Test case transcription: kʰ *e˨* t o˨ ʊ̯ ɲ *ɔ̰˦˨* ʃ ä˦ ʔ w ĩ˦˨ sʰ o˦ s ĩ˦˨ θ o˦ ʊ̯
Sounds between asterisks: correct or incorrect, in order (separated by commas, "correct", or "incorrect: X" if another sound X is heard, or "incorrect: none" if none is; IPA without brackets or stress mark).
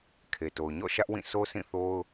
correct, correct